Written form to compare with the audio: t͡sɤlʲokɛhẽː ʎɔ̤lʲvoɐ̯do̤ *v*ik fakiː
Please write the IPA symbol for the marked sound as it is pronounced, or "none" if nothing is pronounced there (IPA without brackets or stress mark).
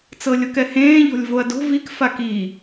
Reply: v